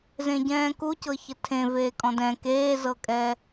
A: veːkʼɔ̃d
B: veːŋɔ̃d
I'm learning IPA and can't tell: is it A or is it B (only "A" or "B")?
A